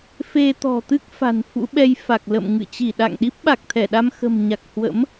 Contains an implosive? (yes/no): yes